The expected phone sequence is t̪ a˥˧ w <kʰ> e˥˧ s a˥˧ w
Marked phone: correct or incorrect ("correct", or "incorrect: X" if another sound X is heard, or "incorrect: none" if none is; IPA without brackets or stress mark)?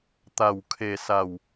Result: correct